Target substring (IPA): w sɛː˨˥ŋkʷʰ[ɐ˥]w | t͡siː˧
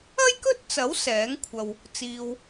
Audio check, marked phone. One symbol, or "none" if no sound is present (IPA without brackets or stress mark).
ɐ˧